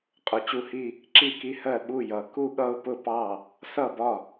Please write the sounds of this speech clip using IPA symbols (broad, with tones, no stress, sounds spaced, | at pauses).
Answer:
qʼ ʊ˩˧˩ t͡ɕ u˥˩ h i˥˧ | ǁ i˥˩ k i˥˧ h ɜ˥˩ ɓ u˥˩ j ʌ˩˧ k u˥˩ ɠ ʌ˥˩ ʊ̯ p ʊ˥˩ p ɑ˥˩ | s ʌ˥˩ b ɒ˥˩